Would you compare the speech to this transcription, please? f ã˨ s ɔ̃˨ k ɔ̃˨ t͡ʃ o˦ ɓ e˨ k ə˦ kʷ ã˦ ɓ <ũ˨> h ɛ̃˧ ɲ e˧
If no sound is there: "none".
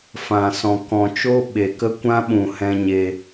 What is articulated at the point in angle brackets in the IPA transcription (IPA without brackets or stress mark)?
ũ˨